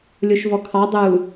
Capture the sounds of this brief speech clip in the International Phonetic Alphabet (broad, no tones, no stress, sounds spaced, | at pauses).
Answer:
lʲ o ʃ v ɔ kʰ ɑ dˤ u